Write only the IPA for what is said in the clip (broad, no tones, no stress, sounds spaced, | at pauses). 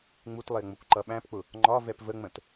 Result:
ŋ͡m u t lˠ ɪː ŋ͡m ʊ kʷ ǃ ʌ ɓ æ̃ p k͡p ʊ | ŋ͡ǃ ɒ v ɛ p v ə ŋ͡m ə̃ t